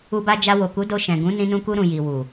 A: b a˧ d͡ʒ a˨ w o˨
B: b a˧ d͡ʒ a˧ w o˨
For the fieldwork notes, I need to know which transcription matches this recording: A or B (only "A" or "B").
B